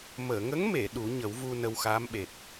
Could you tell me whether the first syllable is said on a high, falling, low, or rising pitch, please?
low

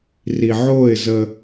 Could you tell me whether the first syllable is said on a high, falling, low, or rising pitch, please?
low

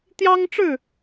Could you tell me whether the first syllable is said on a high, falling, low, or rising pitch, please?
high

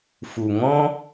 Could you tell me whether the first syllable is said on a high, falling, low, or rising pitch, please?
low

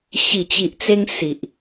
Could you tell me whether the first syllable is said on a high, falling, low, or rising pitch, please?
low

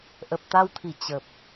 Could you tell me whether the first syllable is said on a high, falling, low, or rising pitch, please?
low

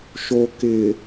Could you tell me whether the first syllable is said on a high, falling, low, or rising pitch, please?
low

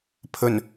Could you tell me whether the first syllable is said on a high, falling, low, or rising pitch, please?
low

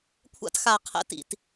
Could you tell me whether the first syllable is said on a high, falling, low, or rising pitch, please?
high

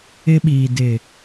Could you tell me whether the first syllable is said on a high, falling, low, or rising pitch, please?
high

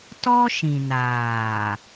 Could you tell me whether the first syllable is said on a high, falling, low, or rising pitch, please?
high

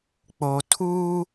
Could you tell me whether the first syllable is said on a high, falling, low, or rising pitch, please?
low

